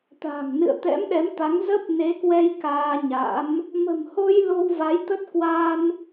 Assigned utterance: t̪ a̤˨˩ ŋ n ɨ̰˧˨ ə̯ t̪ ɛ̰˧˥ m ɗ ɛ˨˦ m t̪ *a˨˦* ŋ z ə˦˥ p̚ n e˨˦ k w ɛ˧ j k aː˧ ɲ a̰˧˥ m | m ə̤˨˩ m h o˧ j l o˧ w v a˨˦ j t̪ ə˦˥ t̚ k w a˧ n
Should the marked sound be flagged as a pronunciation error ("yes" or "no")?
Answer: no